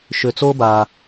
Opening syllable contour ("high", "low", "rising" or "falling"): low